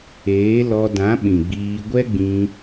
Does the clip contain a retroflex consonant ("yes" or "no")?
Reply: no